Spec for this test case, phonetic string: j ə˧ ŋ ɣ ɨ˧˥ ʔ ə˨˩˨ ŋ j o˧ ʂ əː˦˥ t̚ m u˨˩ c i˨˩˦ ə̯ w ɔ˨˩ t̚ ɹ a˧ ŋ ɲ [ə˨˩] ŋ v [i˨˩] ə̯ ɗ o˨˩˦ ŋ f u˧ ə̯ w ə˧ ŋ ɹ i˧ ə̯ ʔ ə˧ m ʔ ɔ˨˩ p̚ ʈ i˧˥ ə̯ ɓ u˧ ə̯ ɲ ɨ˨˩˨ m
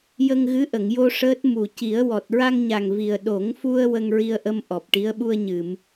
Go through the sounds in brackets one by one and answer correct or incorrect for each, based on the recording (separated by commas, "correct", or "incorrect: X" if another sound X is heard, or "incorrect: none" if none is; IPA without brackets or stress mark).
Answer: incorrect: a˨˩, correct